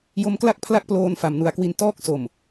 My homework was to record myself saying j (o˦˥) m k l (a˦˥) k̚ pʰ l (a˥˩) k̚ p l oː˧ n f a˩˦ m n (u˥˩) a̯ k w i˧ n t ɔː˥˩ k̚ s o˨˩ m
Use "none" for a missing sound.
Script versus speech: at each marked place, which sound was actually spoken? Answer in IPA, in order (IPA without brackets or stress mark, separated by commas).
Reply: o˦˥, a˥˩, a˥˩, u˩˦